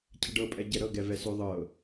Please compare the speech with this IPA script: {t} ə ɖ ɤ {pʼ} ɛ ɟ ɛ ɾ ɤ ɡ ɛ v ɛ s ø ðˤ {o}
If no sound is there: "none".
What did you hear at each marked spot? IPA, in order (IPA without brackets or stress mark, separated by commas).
cʰ, pʼ, ɤ